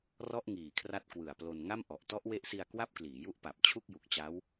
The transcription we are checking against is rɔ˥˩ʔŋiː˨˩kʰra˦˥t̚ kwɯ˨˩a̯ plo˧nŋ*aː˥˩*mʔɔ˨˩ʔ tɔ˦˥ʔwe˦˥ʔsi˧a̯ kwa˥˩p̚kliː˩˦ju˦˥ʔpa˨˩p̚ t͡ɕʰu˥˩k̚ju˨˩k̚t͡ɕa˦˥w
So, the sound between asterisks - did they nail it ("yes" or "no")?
no